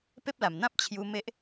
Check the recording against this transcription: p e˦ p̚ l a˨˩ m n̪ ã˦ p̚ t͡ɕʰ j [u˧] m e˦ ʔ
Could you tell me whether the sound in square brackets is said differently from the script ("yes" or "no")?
no